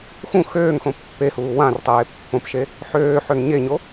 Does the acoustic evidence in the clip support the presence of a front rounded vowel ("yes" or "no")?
yes